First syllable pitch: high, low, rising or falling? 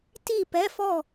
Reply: falling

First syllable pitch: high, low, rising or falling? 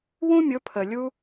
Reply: high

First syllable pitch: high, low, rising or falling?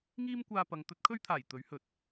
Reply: high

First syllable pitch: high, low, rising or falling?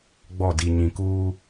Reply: falling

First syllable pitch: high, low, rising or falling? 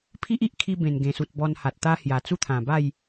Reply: high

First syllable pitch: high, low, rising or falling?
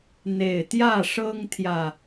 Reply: low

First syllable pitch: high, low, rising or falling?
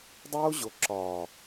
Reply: high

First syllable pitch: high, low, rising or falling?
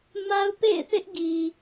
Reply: high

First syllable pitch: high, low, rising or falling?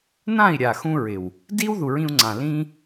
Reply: falling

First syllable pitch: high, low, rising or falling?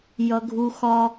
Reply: high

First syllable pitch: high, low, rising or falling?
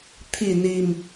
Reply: low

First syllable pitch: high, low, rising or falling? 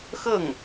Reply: falling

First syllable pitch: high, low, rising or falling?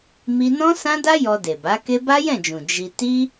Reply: high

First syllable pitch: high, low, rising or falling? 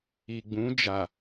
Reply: low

